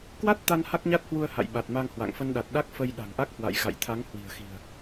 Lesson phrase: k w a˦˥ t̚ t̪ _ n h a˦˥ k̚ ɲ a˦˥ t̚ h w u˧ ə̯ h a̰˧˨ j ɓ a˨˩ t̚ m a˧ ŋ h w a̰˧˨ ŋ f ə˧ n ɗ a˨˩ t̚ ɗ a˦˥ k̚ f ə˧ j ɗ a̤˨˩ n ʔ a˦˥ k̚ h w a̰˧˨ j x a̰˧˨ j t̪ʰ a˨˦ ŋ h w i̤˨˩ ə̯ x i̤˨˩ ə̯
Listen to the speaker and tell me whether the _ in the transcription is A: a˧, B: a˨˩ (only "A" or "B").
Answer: A